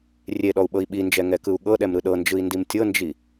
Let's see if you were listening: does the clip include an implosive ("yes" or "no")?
yes